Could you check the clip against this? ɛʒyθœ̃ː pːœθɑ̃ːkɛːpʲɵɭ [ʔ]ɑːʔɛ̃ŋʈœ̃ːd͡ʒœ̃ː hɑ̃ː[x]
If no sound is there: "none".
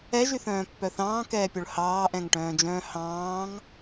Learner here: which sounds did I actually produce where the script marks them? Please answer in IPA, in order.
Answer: h, ŋ

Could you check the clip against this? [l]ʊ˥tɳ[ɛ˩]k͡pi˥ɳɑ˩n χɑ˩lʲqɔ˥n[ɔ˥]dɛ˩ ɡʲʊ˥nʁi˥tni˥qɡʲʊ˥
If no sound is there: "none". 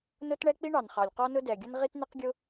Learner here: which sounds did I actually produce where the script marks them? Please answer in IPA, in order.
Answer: n, ɛ˥, ʊ˥

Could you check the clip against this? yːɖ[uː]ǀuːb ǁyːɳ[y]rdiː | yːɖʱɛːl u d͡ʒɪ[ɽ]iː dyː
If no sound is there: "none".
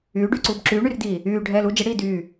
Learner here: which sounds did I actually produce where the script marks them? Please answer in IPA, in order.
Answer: yː, y, ɽ

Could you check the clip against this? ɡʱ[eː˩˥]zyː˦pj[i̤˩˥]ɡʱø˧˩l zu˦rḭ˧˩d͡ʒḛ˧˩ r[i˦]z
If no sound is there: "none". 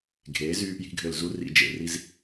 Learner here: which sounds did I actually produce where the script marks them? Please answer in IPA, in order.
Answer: eː˩˥, i̤˩˥, i˦

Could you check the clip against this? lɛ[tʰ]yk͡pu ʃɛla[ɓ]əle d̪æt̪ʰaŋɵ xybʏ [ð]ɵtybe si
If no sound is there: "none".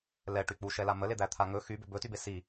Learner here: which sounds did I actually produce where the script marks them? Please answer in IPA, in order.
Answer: ʈ, m, b

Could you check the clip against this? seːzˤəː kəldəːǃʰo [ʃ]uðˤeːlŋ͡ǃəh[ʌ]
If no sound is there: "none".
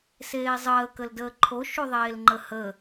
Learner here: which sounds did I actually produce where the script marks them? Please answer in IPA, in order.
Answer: ʃ, ə

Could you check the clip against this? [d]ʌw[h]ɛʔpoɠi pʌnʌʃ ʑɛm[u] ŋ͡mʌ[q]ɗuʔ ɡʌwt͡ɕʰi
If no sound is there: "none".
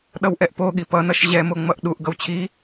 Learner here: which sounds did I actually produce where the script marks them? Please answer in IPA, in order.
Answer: ɗ, ʔ, o, ʔ

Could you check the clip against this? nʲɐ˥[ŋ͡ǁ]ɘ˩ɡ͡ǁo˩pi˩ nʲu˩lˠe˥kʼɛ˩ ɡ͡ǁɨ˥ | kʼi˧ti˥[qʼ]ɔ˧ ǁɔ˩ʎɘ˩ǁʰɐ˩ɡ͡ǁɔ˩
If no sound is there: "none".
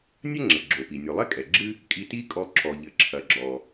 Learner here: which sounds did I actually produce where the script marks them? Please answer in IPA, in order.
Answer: ŋ͡ǁ, kʼ

